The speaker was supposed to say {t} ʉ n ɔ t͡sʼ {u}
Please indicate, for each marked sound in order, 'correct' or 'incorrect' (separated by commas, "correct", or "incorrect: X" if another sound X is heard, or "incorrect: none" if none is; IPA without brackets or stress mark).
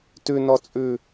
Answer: correct, incorrect: ʉ